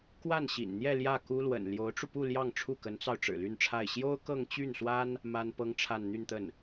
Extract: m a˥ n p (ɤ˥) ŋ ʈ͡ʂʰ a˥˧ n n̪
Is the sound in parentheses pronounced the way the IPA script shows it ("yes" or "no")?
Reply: yes